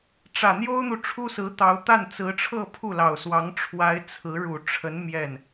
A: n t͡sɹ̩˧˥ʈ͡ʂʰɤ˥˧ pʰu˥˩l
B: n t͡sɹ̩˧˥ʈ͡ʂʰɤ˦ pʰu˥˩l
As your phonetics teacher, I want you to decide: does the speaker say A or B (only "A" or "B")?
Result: A